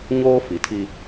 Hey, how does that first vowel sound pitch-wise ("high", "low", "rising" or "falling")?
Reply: high